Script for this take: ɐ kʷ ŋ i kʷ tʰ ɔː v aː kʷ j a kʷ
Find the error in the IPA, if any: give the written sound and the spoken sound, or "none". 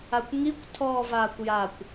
ɐ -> a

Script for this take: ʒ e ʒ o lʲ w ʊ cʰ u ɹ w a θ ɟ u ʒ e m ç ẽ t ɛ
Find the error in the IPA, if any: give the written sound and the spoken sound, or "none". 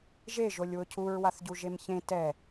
none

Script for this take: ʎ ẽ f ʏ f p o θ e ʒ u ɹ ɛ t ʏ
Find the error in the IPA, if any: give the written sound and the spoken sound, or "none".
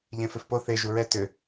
none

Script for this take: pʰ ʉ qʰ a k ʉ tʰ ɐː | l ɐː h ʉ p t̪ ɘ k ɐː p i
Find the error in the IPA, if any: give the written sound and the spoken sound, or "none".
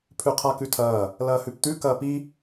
ɘ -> ʉ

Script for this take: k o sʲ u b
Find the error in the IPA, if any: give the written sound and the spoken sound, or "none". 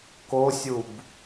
none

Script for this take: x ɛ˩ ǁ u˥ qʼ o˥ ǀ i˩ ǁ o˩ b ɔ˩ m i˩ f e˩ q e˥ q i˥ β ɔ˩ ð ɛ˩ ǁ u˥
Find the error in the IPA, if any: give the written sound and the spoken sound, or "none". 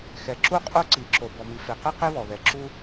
none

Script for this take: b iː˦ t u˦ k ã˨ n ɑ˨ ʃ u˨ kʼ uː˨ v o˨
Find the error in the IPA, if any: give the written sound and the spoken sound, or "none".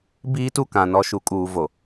ɑ˨ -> ɔ˨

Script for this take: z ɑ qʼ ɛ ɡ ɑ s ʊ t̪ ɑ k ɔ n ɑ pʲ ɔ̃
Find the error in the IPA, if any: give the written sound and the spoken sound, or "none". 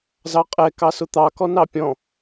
ɡ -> k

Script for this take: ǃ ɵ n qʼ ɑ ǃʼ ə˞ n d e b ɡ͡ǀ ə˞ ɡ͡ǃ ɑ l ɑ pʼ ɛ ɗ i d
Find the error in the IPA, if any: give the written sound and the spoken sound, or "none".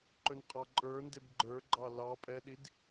ɡ͡ǀ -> ɡ͡ǃ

